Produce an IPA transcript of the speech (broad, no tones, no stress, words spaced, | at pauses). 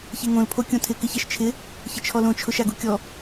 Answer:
çeŋõl pʰokʲõtʰɪ kɪçɛʃt͡ʃʰɪ | çɪt͡ʃʰɔlõ t͡ʃʰʊʃaɡukʲɔ